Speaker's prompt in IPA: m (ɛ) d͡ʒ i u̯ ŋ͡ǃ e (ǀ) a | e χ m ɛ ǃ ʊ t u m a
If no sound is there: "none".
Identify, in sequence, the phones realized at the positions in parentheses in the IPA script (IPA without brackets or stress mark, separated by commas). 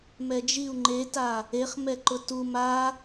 ɛ, t